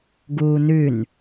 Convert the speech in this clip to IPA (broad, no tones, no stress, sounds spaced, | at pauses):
ɡ uː n ʉ n